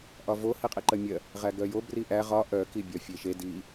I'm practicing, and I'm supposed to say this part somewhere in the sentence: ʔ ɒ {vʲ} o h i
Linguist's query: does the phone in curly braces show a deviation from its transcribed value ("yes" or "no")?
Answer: yes